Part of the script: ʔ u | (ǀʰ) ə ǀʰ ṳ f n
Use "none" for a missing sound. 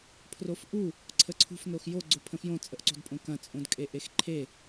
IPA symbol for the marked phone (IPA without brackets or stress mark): ǀʰ